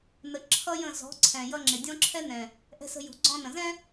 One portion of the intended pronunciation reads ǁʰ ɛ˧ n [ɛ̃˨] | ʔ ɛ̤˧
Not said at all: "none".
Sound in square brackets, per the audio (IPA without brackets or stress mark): ɛ̃˨